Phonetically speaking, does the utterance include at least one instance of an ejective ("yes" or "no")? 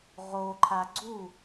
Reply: no